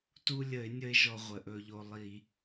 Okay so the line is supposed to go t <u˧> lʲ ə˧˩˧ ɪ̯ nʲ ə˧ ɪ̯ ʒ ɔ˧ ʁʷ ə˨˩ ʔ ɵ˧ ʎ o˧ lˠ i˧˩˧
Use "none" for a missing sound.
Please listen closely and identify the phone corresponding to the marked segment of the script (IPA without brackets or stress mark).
u˧